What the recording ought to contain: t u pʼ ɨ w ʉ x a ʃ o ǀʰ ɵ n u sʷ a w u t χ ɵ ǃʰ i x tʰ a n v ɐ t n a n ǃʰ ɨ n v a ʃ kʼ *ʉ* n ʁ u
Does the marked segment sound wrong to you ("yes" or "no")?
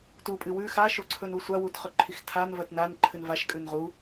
no